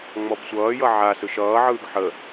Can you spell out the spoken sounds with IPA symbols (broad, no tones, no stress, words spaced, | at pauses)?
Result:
ŋ͡mɔbsʷʌːjʌ ʕasɯʃ ʌːʕɯːɡ ħə